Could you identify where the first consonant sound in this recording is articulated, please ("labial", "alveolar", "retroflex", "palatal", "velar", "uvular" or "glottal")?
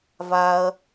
labial